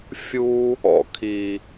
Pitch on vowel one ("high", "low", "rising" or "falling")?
high